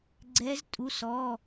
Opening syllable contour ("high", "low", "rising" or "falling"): rising